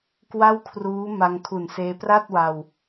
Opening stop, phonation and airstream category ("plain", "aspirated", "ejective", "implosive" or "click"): plain